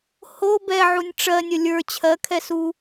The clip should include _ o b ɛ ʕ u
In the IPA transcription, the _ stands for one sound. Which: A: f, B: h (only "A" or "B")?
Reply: B